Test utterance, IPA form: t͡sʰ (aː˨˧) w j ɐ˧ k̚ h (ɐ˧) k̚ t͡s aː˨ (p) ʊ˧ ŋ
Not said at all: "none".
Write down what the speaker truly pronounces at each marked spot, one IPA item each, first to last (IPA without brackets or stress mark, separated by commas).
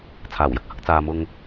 aː˨˩, ɐ˧, m